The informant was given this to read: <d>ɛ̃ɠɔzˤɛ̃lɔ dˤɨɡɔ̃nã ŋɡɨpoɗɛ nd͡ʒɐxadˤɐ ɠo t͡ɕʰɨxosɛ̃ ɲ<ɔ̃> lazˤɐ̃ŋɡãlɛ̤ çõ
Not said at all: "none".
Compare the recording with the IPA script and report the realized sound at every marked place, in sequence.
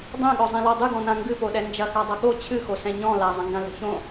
dˤ, ɔ̃

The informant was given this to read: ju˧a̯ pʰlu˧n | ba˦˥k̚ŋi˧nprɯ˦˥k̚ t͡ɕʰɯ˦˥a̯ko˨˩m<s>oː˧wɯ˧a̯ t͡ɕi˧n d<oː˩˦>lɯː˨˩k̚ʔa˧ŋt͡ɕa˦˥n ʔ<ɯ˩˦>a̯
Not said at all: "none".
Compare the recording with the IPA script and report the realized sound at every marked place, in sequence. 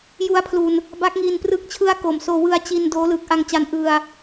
s, oː˦˥, ɯ˧

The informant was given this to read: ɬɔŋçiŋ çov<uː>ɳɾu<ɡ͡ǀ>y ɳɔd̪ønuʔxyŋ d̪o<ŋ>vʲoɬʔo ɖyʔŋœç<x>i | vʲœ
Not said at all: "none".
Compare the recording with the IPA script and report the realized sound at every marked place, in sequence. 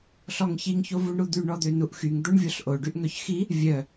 u, d̪, ɳ, x

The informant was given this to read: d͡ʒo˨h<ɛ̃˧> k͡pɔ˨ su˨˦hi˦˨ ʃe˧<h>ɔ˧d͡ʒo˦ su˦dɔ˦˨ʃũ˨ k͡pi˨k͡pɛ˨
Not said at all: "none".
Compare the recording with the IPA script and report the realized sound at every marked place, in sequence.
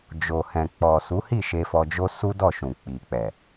ɛ̃˨, f

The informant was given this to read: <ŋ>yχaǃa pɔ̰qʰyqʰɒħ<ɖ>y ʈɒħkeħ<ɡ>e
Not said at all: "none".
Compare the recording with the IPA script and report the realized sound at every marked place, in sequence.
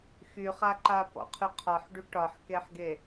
x, ɖ, ɡ

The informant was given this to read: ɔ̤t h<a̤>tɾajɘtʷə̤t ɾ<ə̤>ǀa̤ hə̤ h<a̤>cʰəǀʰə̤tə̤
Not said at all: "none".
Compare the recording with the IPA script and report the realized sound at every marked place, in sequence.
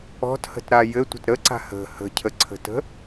ə̤, ə, ə̤

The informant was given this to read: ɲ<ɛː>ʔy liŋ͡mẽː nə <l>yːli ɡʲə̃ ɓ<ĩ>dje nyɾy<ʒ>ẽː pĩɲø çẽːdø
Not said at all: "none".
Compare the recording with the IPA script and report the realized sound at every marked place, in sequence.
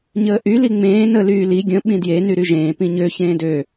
əː, l, ĩ, ʒ

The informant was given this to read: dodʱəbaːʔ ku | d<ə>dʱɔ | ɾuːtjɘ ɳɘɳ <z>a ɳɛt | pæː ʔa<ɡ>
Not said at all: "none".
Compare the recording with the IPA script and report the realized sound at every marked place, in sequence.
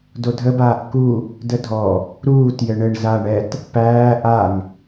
ə, z, ŋ

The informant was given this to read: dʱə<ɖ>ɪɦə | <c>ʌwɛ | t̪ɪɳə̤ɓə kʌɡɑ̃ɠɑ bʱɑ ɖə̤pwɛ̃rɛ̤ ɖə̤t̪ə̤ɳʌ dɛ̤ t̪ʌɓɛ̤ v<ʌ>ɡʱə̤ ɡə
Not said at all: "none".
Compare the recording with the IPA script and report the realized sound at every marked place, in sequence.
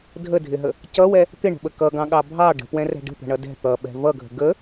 dʱ, c, ʌ

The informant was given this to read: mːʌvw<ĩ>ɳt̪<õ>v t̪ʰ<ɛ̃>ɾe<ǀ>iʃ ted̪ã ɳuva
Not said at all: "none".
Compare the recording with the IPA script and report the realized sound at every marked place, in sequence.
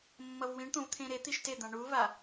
ĩ, õ, ẽ, t̪

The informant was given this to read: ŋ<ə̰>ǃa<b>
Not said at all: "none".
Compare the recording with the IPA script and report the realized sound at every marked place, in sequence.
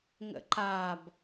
ə̰, b

